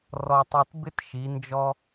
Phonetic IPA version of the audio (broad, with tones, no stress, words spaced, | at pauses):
rɔ˧tˤu˧t bɪ˦t ʃi˨˦nd͡ʒɔ˦